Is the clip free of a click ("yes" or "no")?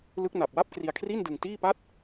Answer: yes